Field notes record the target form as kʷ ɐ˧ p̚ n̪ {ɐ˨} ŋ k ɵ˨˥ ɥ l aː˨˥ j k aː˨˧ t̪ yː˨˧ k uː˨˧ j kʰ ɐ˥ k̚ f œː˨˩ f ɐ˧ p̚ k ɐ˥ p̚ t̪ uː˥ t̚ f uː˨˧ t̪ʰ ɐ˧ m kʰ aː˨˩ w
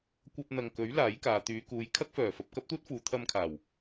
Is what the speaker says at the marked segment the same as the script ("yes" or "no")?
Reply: yes